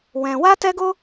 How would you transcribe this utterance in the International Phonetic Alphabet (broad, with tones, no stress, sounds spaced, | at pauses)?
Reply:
w ɛ̃˧ w a˦ t ɛ˦ ɡ o˦